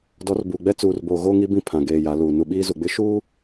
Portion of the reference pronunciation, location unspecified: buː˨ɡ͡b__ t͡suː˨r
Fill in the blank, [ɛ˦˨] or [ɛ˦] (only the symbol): ɛ˦